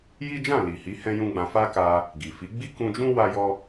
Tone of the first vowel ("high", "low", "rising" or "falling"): high